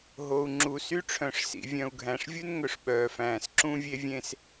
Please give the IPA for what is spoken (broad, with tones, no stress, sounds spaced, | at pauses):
ɦ o˨ u̯ ŋ͡ǁ u˨ s y˦ ʈ͡ʂʰ œ̃˨ ʂ s ḭ˨ vʲ œ̃˨ u̯ ɡʱ æ̃˨ ʂ vʲ u˦ n ŋ ɵ˨ ʂ ɓ œː˨ f æ̃ː˨ s ǁ ũ˦ vʲ e˦ vʲ ẽ˦ s